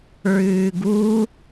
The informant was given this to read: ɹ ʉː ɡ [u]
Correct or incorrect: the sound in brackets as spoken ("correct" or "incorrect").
incorrect